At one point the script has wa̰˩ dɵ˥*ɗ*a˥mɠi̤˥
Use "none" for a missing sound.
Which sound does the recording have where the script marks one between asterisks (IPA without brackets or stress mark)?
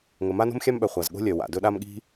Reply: ɗ